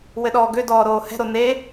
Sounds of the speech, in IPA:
w ɘ ɗ ɔː ɡ ø d ɔː ɾ oː h ɛ̤ ɾ o n e

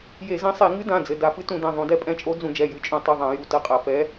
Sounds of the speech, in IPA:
j e˧˩˧ z ɛ̃˧˥ sˤ e˧˩˧ ŋ ɨ˧˥ d ã˩˧˩ d͡z ɘ˩˧˩ d a˧˩˧ f ɨ˧˥ t ũ˧˩˧ d ɛ̃˩˧˩ ðˤ ũ˧˩˧ d ɛ˧˥ pʼ ɛ̃˧˥ t͡ʃʼ o˧˥ d͡z ũ˧˩˧ d͡ʒ ɛ˩˧˩ j ɨ˩˧˩ t͡ʃʼ ũ˧˩˧ tˤ ɨ˩˧˩ ðˤ ã˧˩˧ j u˩˧˩ t ɐ˧˥ qʼ ɐ˧˩˧ f ɛ˧˥

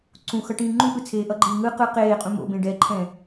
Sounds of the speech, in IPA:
ǀ ũ x ʌ ʈ ĩː ŋ͡ǃ ũ ʔ ɯ t͡sʰ eː ʔ ʌ ɡ͡ǃ iː ŋ ɯ q ɯ q eː qʼ ũ m o̰ b ẽ ɖ ɛ ǃʰ ɛ̃

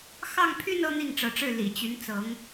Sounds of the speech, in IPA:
x ɑ˥˧ ŋ pʰ y˥˧ n ɤ˥˧ n̪ i˥˩ ŋ ʈ͡ʂ ɤ˧˥ ʈ͡ʂ ɻ̩˥˩ l ḭ˨˩ t͡ɕ y˧˥ n t͡s ɤ˧˥ ŋ

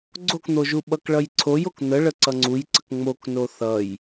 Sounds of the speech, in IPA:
ɡ͡ǀ o k n̪ o ʒ u ɓ ʌ k ɭ ʌ j ǀʰ o j o k n̪ ə ɭ ə ǀ ʌ ŋ͡ǀ u j ǀ ə k ŋ͡m o k n o θ ʌ j

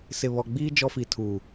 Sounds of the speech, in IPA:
s ɪ˨ β ɔ˨ ɡ͡b iː˦ d͡ʒ ɔ˦ f i˨ tʰ uː˨

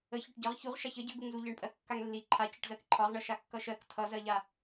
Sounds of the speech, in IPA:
ə ç ɒ ʈ ɟ ʌ ʁ ç u ʁ ʃ a ç ə ɟ ə ɡ u ŋ z u ʎ ɜ ɳ pʼ ɜ kː a ŋ lː i ǃʰ a c ə ʈ z ɜ k ǃʰ ɒ ʁ ɳ ʌ ʃ a kː ʌ ʃ ɜ k tʰ ʌ z ɜ ʎ a

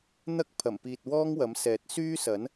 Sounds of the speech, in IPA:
n̪ ɐ˥ k̚ pʰ ɐ˨˩ m p iː˨ t̚ w ɔː˥ ŋ w ɐ˨˥ m s ɛː˨˥ t̚ s yː˥ s ɐ˨˥ n

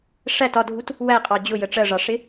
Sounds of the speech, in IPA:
ʂ æ t ɒ dʱ u t | w æ qʼ ɑ d͡ʑ ʊ j ə ʈ͡ʂ ɜ ʐ ɑ ʂ ɪ

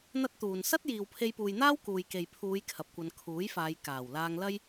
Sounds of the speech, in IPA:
n̪ ɐ˥ t̚ t̪ uː˨ n s ɐ˥ t̚ j iː˨ w pʰ e˧ j p uː˨ j n̪ aː˥ w k uː˨ j k e˨ j pʰ uː˨˧ j kʰ ɐ˨ p̚ kʷ ɐ˨˧ n kʰ uː˨˥ j f aː˨˧ j k aː˨˩ w l aː˧ ŋ l ɐ˥ j

